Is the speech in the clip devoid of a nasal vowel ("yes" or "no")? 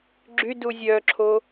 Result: yes